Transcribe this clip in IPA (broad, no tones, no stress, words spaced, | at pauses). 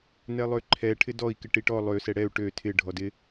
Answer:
nɛlˠøǃʰɛ ʈʰɪdɔi̯ kɪʈiʈɔ lˠø sɛɽɛu̯ ʈø tʰɪ ɖʱɔdɪ